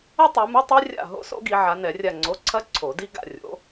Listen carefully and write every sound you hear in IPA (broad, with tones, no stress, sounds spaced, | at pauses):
ɐ˥ tˤ o˨˦ m ɨ˧˥˧ tˤ i˥ rʲ a̰˦˨ ɦ o̰˥ s o̰˥ ɡ i˨˦ ʕ a˨˦ n ɛ˨˩˦ rʲ a˦˨ ŋ͡ǀ o˧˥˧ ǀʰ ɐ˥ ǀʰ o˨˩˦ d i˥ ɡ a̰˦˨ rʲ o̰˨˦